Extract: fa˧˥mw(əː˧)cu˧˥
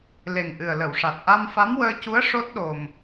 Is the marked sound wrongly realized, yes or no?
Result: no